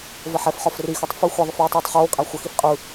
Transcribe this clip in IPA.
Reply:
v ə ħ ɛ f χ ɒ f r i x œ tˤ f ɯ xʷ ɛ ðˤ ə f j u tˤ uː tˤ χ oː kʼ a xʷ ə x i f qʼ ɯ

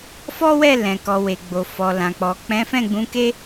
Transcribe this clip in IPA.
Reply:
f ɔ˦ w ɛ˦˨ l ɛ̃˨ k ɔ˨ w e˨ ɡ͡b o˨ f ɔ˨ l ã˨ k͡p ɔ˨ k͡p ɛ̃˨˦ f ɛ̃˦˨ ɡ͡b ũ˨˦ k e˦

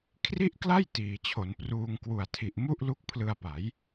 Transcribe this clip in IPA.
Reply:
kʰ r i˥˩ ʔ k l a˥˩ j t iː˩˦ t͡ɕʰ o˩˦ n p r uː˧ ŋ k w u˨˩ a̯ tʰ i˨˩ ʔ m u˥˩ ʔ l u˦˥ k̚ pʰ l ɯ˧ a̯ p a˩˦ j

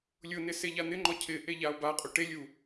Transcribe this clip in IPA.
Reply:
lʲ ʊ n ɪ s e ʎ a n̪ ɪ ŋ͡ǃ ɔ cʰ ɪ ʔ e ʎ a o̯ b a qʼ u ʈ e lʲ u

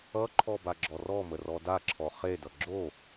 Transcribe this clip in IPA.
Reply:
ʌ ǃʰ ɔ b a ɡ͡ǁ ɔ r ɔ m ə r ɔ d a ǁʰ ɔ χ e d ʌ ɡ͡ǁ o

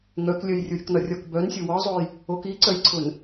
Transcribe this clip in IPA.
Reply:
ŋ œ k lʲ œ j rʲ o ɾʲ ʊ k n ɒ rʲ ɒ k b œ n sʲ ʊ w ɒ zˤ o j | o k i ǀ œ j ǀʰ ʊ n

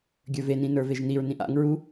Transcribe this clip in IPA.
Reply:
ɡʲ ə˞ v e n ĩ n ə˞ v e ʒ n i ɹ n ĩ ʔ a̰ ŋ ɹ u

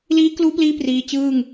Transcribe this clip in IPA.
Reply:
l iː˦˥ k l uː˦˥ p l iː˦˥ p r iː˦˥ t͡ɕ ɯː˥˩ ŋ

